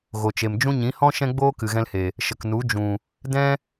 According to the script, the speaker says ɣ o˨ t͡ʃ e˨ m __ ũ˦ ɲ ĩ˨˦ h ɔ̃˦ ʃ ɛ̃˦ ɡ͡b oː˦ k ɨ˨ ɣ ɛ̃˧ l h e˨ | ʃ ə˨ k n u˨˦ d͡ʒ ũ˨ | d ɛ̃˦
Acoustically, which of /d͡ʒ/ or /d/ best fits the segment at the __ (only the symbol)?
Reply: d͡ʒ